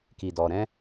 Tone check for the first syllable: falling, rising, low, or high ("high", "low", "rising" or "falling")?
low